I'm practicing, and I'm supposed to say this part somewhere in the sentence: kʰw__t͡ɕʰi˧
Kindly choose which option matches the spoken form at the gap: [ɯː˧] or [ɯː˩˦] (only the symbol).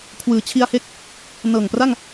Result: ɯː˩˦